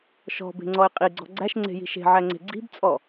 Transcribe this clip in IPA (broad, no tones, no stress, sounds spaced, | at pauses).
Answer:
ʃ ɔ̤ b e̤ ŋ͡ǀ ɔ ɪ̯ qʼ i ɡ͡ǀ ɔ̤ ɡ͡ǀ æ ʃ ŋ͡ǀ e̤ j i̤ ʃ e̤ ʕ æ ŋ͡ǀ e̤ ɡ͡ǀ i̤ b t͡sʼ ɔ